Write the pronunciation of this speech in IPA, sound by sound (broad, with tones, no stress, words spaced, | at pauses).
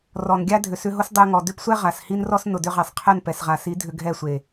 rɔ˨n ɡʲa˦ dʱʏ˨sʏ˧ɦo˦s dˤɛ˧ ŋɔ˨dʏ˦psʷɛ˦ ʁa˨shi˦nrɔ˦s nʊ˨dʏ˧ʁɛ˨sˤqʰɛ˦˨n pɛ˨sʁa˨si˨˦ dʱʏ˧ɡʱɛ˦˨sʷe˨